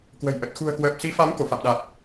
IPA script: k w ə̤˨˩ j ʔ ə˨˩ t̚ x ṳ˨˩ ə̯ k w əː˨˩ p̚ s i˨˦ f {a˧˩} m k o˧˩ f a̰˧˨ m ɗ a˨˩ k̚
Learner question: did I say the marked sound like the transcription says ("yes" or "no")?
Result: no